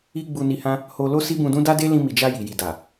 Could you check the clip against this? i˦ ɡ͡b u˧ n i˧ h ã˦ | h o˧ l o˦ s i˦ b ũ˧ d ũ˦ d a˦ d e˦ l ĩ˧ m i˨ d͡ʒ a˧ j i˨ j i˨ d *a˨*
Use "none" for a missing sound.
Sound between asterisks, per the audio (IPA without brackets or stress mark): a˨